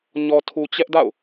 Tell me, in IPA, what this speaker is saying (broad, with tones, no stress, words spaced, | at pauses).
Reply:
ɲɔ˨tʰu˨t͡ɕɛ˦ʔda̰˦˨ʊ̯